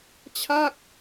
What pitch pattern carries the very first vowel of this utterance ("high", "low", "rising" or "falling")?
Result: falling